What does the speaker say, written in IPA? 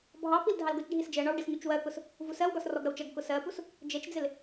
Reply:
bʱ ɑ p i l dʱ ɑ l ɡ ʊ t͡ʃ ɖʱ i s d͡ʒ ɜ ɳ ɒ w ɖ ɪ s ɲ u t͡ʃ w ɜ k ʊ s | v u s ɜ w ɡ ɒ s r ɔ ɡ ɾ ʌ w t͡ʃ ʌ ɡ k ʊ s ɜ p u s | d͡ʒ ɜ t͡ʃ d͡z ɪ l

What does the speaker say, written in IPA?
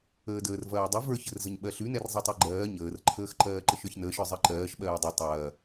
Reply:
əː d əː r v ɐː dˤ ə v ə˞ ç ə r z ə ɲ ɓ ɜ ɬ ʉ n ɛ r zˤ i tˤ ɛ ɡ͡ǃ ɜː ɲ əː r ǃʰ əː x ǃ ɜː ǃ ə ʃ ə˞ ç n əː ʃ ə˞ zˤ ɜ ǃ ɜː ʃ ɓ ɜː dˤ i tˤ ɐː

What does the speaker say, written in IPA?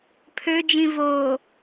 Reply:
pʰ ø d͡ʒ ĩ v o

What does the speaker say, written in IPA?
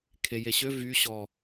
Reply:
kʰ e j e ɕ ø v y ɕ ɔ

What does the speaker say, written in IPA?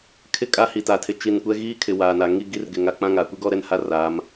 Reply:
kʰ ɪ˦˨ kʼ a˦ h i˨ t a˨ tʰ ɪ˨ t͡ʃ i˨ n kʷ ɛ˦ ɣ iː˦ kʰ ɪ˨ w aː˨ n a˨ ŋ i˦ ɡ i˦ r ɡ ɪ˨ ŋ a˨ k͡p ã˦ ŋ a˨ kʷ i˦ ɡ ɔ˦ ɾ ɛ˦ n h a˦ r aː˨˦ m

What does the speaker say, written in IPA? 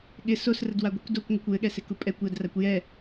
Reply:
ɠ ɪ s o s r ə d w a ɡʷ ɪ kʷ d o kʷ ŋʷ ɘ kʷ w ɘ ɠ ɛ s ɪ k u pʼ ɛ kʷ j ə d r a kʷ j ɛ

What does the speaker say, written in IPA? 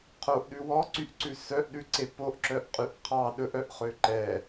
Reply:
qʰ o ʔ ɗ ʉ w ɔ ǀ y ʔ ǀ ʉ s œ ʔ ɗ ʉ ǀ e p o ʔ ǁ œ ʔ qʼ y ʔ qʰ ɑ ɗ ɵ ʔ œ ʔ χ ø ǃ ɛ

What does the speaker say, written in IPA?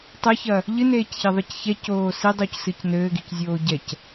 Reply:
tˤ ɘ ç ɐ | ʎ ɨ n eː c ç ɛ ðˤ ɨ c ç ɛ c oː s i dˤ u c s ɨ c n ɘː ɡ i c zʲ oː ɟ ɛ c

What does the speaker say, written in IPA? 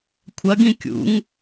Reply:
kʷʰ ɐ ɡ ĩ kʲ ṵ ŋ

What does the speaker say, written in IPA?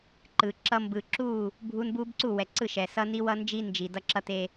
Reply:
ǃ ɯ˨ ǁ ʌ˦ m b ɯ˨ ǁ u˦˨ | bʱ u˦ n b u˦ b ǀ u˦˨ w ɛ˨ ǀ ɯ˦˨ ʃ ɛ˨ s ʌ˦ n i˦ w ʌ˦ n d͡ʒ i˦ n d͡ʒ i˨ d ʌ˦ ǁ ʌ˦ t e˦

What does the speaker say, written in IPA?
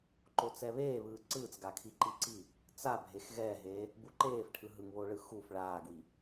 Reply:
ǃ o t͡s ɛ β eː β ɯː ǀ ɯː t͡s ɡ a kʰ i ǃ i ǀ i | t͡s a bʱ e x ɣ ɛː ɦ eː | b u ǃ eː f ʈʰ ɯ ɦ ɯ ŋ β o ɭ ɯ x u f ɭ aː ɡ w i

